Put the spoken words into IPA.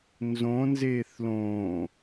n z õ n z eː θ l õː

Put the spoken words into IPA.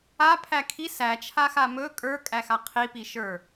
a pʰ æ kʰ i s æ t͡ʃʰ a x a m ɵ kʼ ə˞ kʼ æ x a qʰ i p i ʃ ə˞

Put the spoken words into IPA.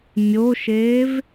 mʲ o ʃ eː v

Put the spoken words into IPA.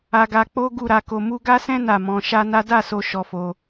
a˧ ɡ a˧ k͡p o˦ ɡ u˦˨ ɾ a˧ k o˧ m u˦ ɡ a˦ s ɛ̃˦ n a˦˨ m ɔ̃˧ ʃ a˦ n a˦ d a˦˨ s o˧ ʃ ɔ˧ f o˧

